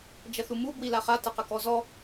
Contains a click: no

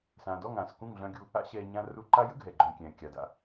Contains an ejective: no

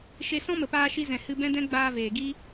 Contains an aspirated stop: no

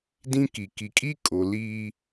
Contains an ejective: yes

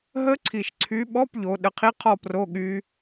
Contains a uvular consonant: yes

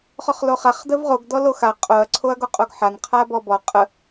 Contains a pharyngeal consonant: yes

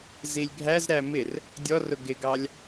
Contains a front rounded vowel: no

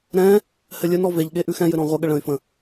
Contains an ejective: no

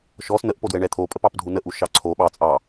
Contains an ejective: yes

